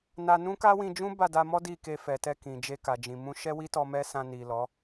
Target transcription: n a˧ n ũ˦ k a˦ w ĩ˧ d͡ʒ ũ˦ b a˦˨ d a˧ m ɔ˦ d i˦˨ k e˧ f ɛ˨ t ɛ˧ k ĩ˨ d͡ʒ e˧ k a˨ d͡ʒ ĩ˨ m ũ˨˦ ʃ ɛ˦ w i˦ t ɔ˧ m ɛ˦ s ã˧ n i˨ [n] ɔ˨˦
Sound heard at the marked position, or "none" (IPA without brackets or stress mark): l